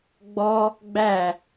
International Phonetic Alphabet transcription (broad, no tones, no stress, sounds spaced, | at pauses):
ɡ͡b ɔ | ɡ͡b æ